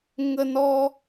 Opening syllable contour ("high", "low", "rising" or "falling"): high